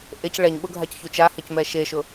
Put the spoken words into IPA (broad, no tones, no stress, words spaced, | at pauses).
ʔec ɭɛɲɓʊ ɡʱacçut͡ʃahɛc mɛʃeʃʊ